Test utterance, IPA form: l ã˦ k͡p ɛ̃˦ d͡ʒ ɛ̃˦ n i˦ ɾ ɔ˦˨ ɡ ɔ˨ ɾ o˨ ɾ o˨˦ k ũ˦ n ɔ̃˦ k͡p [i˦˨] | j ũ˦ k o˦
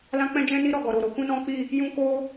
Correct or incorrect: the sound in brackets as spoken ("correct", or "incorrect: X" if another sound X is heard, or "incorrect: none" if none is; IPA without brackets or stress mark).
correct